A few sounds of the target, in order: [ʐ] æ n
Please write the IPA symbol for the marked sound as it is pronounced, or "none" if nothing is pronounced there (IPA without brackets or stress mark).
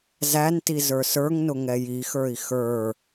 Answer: z